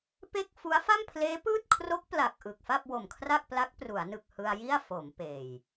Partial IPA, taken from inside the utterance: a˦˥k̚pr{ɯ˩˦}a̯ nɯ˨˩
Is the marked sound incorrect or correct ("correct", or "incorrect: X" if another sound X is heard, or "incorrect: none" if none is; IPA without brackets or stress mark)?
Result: incorrect: u˩˦